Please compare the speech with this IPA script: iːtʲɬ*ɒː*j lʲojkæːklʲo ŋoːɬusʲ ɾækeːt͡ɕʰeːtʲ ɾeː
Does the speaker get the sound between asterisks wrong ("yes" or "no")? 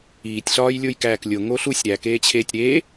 no